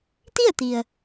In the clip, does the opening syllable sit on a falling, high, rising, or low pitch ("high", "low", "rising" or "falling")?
falling